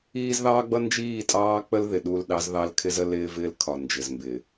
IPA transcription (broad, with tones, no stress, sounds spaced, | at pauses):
iː˦ z ð ɑː˦ ɡ͡b ʌ˦ n d͡ʒ iː˦˨ tʼ ɑː˦ k͡p ə˦ l ð ɪ˨ ɗ u˦˨ l ɗ ɑ˦ z ð ɑ˦ l kʰ ɪ˦ z ə˦ l ɪː˦ v ɪː˦ l kʰ ɒ˨ n d͡ʒ ɪ˨ z m b ɪ˨